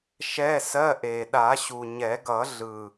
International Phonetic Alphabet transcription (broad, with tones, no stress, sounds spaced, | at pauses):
ʃ ɛ˧˥˧ s ɜ˧˥˧ ʔ e˨˩ ɗ a˨˩˦ ɕ u˨˩ ɲ ɛ˨˩˦ ɡ ʌ˨˩˦ ɮ ɯ˨˩